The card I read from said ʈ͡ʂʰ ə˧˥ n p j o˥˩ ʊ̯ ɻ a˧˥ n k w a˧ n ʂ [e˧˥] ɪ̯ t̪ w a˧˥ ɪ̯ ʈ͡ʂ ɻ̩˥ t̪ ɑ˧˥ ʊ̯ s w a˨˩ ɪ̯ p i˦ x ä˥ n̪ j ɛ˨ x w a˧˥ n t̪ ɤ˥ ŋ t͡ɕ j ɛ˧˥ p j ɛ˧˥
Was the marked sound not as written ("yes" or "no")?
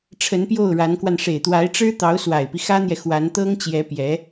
yes